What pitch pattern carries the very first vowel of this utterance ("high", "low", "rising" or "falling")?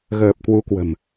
low